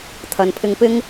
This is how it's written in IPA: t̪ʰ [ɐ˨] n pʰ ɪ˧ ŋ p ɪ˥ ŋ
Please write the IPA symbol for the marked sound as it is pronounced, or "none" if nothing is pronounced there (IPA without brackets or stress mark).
ɐ˨